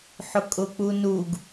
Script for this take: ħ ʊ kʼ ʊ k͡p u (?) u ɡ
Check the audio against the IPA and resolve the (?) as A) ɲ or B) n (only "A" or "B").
B